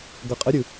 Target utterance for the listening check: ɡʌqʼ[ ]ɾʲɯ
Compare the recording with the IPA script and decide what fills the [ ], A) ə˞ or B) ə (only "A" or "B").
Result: B